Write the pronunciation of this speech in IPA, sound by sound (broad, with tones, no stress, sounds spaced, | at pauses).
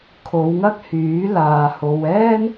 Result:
kʰ o˨˧ w ŋ ɐ˥ k̚ h yː˨˥ l aː˨ h o˨ w ɛː˥ n